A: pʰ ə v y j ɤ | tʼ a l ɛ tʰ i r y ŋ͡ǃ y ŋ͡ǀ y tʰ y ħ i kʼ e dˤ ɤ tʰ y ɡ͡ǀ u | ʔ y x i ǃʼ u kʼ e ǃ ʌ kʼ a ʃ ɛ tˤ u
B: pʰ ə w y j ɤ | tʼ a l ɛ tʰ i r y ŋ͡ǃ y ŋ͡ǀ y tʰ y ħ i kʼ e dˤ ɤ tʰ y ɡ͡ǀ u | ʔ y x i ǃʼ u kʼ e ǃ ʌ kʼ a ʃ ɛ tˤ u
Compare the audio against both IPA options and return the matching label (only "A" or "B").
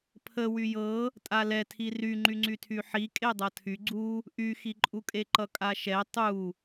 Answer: B